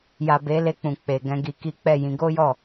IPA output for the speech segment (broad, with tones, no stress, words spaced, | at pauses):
ja˨be˨˦ le˧k͡pũ˨k͡pe˨ ɡɛ̃˧ɡi˧ki˦ k͡pɛ˦˨jĩ˨˦ ɡo˦jɔ˦˨